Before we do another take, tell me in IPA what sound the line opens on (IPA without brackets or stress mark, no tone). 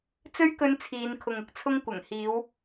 t͡s